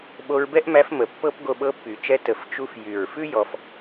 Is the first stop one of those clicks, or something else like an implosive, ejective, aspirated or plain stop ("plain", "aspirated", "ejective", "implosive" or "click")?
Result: implosive